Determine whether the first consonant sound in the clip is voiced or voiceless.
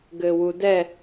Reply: voiced